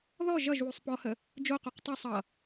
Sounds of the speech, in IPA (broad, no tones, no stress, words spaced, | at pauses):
ðɔ ʒʌʒ wusˤpɔhə | d͡ʒoquq tˤʌ sˤʌ